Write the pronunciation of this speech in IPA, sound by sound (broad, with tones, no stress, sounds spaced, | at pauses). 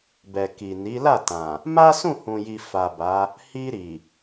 b ɛ˨ k i˨ n i˨˦ l a˦˨ t ã˨ | m a˦ s ũ˦˨ h ũ˨ j i˨ f a˨ b a˨˦ | h i˧ ɾ i˨